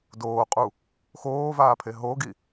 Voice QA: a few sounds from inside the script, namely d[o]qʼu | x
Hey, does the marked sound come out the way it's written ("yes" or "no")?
no